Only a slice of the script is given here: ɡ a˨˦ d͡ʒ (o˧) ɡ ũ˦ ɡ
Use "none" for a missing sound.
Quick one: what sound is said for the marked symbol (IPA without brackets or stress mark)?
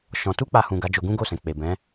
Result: o˧